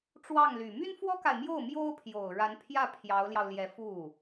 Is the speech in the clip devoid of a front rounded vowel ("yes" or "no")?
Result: no